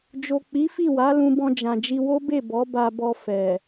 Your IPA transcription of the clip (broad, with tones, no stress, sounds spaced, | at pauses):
d͡ʒ o˨ k͡p i˨˦ f i˦˨ w a˨˦ l ũ˧ b ɔ̃˧ d͡ʒ ã˨ d͡ʒ i˧ w o˦ b e˦˨ b ɔ˨˦ b a˧ b ɔ˧ f ɛ˨